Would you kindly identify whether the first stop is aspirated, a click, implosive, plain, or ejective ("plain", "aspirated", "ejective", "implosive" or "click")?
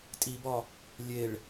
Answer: ejective